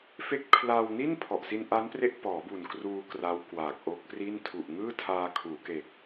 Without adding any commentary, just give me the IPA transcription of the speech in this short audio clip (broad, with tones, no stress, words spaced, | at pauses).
fe˥˩k̚ pʰla˧wni˥˩n pʰɔ˨˩ʔsi˧nʔa˦˥npre˦˥ʔ pɔː˩˦bu˨˩n kruː˧ kra˦˥wkwaː˨˩k̚ʔo˦˥k̚pri˥˩n tʰu˨˩ʔŋɯː˥˩tʰaː˧ kʰuː˩˦ke˨˩k̚